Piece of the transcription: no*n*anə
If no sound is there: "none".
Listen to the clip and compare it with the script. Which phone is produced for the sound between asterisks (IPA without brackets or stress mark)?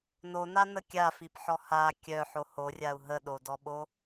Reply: n